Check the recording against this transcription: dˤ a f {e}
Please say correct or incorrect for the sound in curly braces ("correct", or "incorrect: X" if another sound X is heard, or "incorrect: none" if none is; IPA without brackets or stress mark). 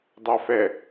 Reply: incorrect: ɛ